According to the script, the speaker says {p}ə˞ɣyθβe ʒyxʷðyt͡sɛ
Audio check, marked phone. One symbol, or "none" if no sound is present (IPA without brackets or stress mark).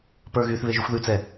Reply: p